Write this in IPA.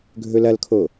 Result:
ɡʱ ɵ l ɐ l kʰ o

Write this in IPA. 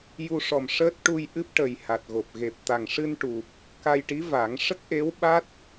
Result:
j u˧ ʂ ɔ˨˩ m ʂ əː˦˥ t̚ ʈ u˧ j ʔ ɨ˦˥ p̚ ʈ ə˨˩ j h a˨˩ t̚ ɣ o˨˩ p̚ ɣ e˨˩ p̚ t̪ a˨˩ ŋ ʂ ɨ˧ n ʈ u˨˩ p̚ | k a˧ j ʈ i˧˥ v a˨˩˦ ŋ ʂ ə˦˥ k̚ ʔ e˧˥ w ɓ a˦˥ t̚

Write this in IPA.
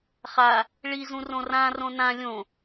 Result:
χ a | ɭ i z ũ r õ r ã r õ n ã lʲ õ

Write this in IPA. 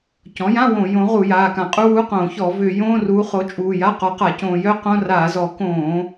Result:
c ɔ̃˩˥ j ã˧˥˧ w õ˧˩˧ j õ˩˥ ʁ u˧˩˧ j aː˩˧˩ k ã˧˩˧ qʼ u˧˥˧ w u˧˥˧ q õː˧˩˧ ç ɔ˧˩˧ v ʏː˧˩˧ j õː˧˥˧ r uː˩˥ χ o˩˥ t͡ʃʼ uː˩˧˩ j a˧˥˧ q ɔ˩˥ q a˧˩˧ c õː˧˩˧ j œ˧˥˧ q õ˧˥˧ r aː˧˩˧ z ɔ˧˩˧ k õː˧˩˧

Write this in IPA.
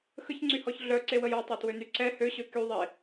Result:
x ə ç ŋ͡ǀ y h ɔ ç ɮ œ ǀ e w ə j ɔ tˤ ø t w ø n y ǀ ɛ h ø ɕ ø k y ðˤ e

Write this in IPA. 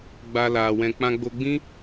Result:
ɡ͡b a˧ l a˧ w ɛ̃˦ k͡p ã˧ ɡ͡b o˧ ɡ͡b ĩ˦

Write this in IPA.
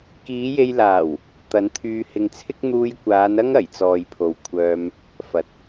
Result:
k iː˨˧ j e˧ j l aː˨˩ w | t̪ ɐ˨˧ n t̪ʰ yː˧ h ɪ˧ ŋ t͡sʰ ɪ˥ k̚ n̪ uː˧ j kʷ aː˨˧ n ɐ˥ ŋ ɐ˨˩ j t͡s ɔː˨ j pʰ o˨ w kʷʰ œː˧ m | f ɐ˨ t̚

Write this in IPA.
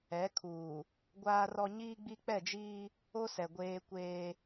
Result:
ɛ˨˦ kʰ uː˨ | ɡʷ aː˦ r ɔ˦ ɲ iː˦ ɡ͡b i˦ k͡p ɛ˦˨ d͡ʒ iː˦ | o˦ s ɛ˨ ɡʷ eː˦ kʷ eː˦

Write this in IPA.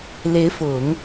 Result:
l e˧˥ ɪ̯ f ʊ˨˩˦ ŋ

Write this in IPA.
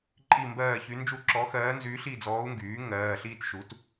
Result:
ǃʼ i˥˧ m b ɜː˥˧ ç y˧˥ n d͡ʒ u˥˧ ǁ ɔ˧˥ x ɜː˧˥ n z yː˧˥ ɬ i˥˧ d͡z ɔː˧˥ u̯ ŋ ɡ yː˩˥ ŋ ɜː˩˧˩ ɬ iː˥˧ t ʃ u˩˥ t

